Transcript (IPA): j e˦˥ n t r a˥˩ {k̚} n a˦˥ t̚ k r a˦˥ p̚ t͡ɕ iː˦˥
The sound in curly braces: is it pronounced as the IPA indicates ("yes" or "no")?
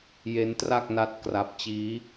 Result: yes